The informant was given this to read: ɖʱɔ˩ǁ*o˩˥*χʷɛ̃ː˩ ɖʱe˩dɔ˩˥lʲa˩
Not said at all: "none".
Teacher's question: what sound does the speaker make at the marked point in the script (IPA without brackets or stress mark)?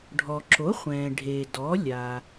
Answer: o˩˥